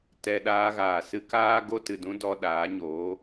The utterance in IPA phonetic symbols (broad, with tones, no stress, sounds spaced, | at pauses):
t ɛ˧ ɗ aː˧ ɣ aː˨ s ɨ˧ k aː˦ ɡ o˦ t ɨ˨ d ũ˦ d ɔ˧ ɗ aː˨˦ ɲ oː˨˦